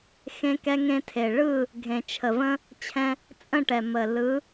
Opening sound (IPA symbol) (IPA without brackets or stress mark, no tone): x